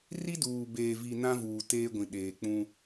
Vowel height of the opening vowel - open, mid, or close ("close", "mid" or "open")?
close